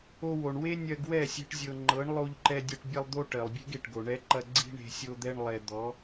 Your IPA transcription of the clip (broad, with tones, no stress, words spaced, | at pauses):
o˧ wo˨ɳ we˦ nʲɜ˧ɡwɛ˦˨ sʲe̤˦ʈzʲɤ˧ ŋ͡ǃɤ˨˦ɳ lˠo˧ʎǃɛ˧dʲɐ˧ʈ bʲɐ˧lˠd̪o˧ ʈɜ˨lˠbʲe̤˦ɡe˨ʈɡo˨ ɳɛ˧ǃɐ˧ ɡ͡ǀi̤˦ɳe̤˧ sʲo˧d̪ɛ˧ɳ lˠɛ˨ d̪ɔ˨˦